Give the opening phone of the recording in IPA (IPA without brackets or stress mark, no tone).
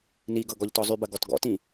n